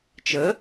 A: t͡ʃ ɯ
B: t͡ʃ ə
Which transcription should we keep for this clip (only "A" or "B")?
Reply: B